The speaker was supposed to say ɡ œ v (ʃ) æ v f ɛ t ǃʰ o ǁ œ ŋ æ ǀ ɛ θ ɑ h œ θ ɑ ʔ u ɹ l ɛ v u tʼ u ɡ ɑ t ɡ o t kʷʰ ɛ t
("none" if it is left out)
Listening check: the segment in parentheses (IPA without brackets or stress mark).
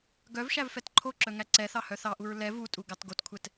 ʃ